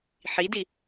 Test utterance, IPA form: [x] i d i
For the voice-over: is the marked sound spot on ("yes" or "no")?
no